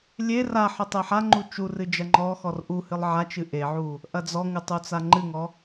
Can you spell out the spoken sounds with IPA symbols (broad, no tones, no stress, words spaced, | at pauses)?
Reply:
lʲe raħɨ tˤeħaŋ͡ǃu t͡ʃurɨ d͡ʒɐŋ͡ǃɔxɔr ʔuhɨlˠ ʕat͡ʃɨ ʔeʕu | ʔɐd͡zɔŋɨ tˤut͡saŋ͡ǃɨŋɔ